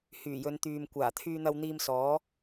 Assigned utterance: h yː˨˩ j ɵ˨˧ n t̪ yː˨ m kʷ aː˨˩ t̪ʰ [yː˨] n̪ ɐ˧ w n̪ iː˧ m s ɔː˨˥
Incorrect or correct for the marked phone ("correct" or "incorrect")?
incorrect